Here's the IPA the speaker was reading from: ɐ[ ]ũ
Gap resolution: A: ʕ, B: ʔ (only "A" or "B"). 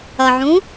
A